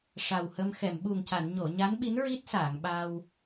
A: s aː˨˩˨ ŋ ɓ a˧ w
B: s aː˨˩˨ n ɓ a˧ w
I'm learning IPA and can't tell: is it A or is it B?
A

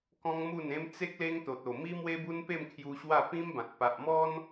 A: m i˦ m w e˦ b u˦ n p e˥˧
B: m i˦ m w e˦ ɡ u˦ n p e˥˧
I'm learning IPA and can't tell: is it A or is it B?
A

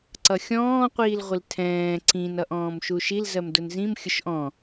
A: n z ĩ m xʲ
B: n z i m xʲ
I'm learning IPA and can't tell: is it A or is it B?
A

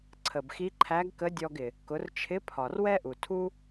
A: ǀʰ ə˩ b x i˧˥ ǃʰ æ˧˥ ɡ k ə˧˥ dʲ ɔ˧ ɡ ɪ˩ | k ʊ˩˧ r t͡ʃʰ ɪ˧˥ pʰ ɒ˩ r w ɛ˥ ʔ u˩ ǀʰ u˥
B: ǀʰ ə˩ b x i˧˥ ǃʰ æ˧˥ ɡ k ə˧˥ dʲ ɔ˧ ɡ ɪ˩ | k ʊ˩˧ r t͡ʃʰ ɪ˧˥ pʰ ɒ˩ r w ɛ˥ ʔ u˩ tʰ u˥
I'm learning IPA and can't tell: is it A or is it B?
B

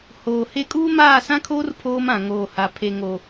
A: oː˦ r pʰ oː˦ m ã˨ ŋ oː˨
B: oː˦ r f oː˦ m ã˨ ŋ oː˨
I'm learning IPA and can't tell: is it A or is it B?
A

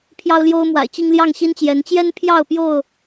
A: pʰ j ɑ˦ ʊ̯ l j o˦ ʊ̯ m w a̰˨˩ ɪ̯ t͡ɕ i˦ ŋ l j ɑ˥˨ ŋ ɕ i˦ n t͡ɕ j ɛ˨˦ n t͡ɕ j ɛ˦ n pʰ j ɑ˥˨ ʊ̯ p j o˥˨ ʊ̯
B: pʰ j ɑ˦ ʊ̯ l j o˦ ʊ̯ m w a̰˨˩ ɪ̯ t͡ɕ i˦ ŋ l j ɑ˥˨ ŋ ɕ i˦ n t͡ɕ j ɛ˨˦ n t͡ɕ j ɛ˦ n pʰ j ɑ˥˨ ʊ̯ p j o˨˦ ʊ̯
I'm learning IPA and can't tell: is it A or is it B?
A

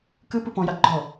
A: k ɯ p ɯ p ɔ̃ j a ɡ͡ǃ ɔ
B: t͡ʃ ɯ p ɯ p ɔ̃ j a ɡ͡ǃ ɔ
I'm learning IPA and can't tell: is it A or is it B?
A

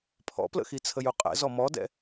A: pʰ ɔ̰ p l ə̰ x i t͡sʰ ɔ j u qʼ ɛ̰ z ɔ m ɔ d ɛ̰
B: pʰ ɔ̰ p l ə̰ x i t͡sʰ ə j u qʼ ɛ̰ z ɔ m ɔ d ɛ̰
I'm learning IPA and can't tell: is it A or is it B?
B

